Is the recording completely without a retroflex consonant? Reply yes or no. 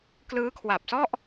yes